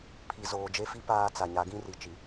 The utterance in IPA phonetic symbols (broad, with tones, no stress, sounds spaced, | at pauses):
pʰ i˨ z oː˨ d͡ʒ e˦ f i˦ p aː˦ t͡s a˨ ɲ a˨˦ ɡ ĩ˦ r i˨ t͡ʃ i˨